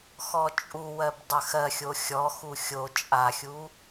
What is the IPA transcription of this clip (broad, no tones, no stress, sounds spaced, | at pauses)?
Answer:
x ɔ t͡ʃʼ u w ɜ b dˤ ɜ x ɜ xʲ o xʲ ɔ x u xʲ o t͡ʃʼ a xʲ u